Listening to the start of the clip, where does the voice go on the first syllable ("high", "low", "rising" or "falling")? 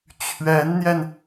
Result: rising